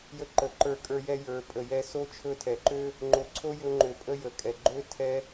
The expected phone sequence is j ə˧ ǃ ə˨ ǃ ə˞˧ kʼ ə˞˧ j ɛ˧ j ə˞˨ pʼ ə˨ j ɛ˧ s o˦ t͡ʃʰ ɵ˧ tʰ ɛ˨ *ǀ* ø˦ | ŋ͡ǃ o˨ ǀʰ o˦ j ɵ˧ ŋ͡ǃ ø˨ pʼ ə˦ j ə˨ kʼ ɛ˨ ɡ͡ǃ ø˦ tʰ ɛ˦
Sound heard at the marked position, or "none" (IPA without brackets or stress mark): ǃ